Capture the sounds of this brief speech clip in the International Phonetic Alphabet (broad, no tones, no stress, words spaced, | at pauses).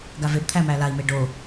ɡavebt̪ʰæ mælai̯me ɖo